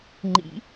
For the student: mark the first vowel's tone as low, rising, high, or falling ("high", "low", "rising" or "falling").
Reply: rising